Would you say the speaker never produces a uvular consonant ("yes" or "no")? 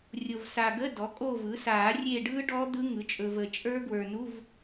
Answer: yes